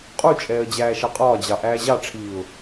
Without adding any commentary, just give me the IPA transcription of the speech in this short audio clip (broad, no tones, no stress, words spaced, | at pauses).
qʼut͡ʃʼɛːə̯ d͡ʑæːʃɑqʼɒːd͡ʑɑ ʔæːʑɑʈ͡ʂʰiːʊ̯